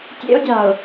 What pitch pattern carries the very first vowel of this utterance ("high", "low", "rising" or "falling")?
high